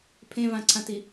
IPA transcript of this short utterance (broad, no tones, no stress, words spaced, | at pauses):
pʰẽvãǀʰãti